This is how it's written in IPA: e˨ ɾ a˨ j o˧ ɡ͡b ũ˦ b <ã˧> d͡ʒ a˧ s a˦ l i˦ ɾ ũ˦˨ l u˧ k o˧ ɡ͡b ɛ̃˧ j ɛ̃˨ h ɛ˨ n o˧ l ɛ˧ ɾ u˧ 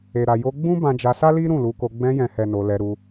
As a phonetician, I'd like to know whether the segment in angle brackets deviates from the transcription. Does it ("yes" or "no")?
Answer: no